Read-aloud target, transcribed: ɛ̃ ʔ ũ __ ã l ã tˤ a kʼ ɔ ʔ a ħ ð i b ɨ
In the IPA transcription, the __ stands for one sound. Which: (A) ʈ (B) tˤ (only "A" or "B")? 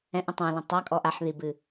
B